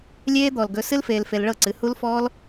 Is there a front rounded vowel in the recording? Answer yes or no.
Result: no